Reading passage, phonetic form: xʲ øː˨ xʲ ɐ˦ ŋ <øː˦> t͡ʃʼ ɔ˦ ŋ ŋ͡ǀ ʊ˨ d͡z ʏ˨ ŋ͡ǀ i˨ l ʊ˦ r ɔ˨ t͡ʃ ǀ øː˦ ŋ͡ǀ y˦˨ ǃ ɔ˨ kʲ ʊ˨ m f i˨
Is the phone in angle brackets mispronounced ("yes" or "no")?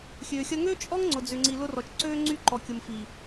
no